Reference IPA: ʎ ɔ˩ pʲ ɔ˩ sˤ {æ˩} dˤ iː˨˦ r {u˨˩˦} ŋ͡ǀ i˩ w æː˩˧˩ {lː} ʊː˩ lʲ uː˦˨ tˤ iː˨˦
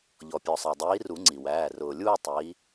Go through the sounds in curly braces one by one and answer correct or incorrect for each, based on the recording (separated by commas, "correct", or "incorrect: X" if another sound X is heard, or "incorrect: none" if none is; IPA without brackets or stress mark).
correct, correct, incorrect: r